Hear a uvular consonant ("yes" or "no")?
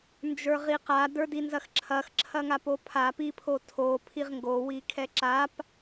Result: yes